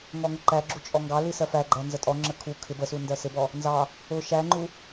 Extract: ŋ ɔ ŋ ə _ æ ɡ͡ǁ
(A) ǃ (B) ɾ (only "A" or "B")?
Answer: A